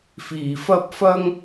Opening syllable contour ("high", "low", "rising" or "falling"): low